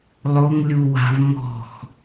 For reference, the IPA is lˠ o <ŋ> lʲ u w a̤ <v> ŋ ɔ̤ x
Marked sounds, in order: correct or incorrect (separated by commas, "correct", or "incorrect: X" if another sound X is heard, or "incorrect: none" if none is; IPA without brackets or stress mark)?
correct, correct